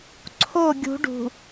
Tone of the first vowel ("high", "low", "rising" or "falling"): falling